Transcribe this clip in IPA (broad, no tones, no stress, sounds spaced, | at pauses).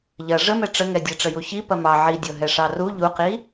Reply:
ʎ ɐ ʐ ə m ɛ ʈ͡ʂ ə ŋ ɛ dʲ ɛ ʈ͡ʂ ə j u ç i p ɐ m ɑ ʕ i dʲ ɤ ɦ ɛ ʂ ɑ r u ʎ u q i